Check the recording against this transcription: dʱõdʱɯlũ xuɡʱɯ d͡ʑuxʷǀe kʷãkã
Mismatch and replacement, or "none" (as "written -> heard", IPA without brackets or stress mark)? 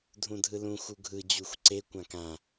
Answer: õ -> ũ